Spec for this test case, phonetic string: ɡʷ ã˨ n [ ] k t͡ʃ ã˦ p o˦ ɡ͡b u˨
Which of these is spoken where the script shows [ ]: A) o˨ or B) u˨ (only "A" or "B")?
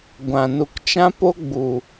B